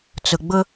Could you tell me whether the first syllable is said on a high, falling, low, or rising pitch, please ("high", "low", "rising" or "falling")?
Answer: low